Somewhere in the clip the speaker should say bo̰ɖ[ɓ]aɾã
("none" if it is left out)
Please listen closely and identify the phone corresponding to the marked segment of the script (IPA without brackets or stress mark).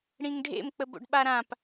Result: ɓ